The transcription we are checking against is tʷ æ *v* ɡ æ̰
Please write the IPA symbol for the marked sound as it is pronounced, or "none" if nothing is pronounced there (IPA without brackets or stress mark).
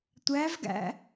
v